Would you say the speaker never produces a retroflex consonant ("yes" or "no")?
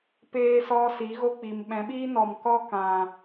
yes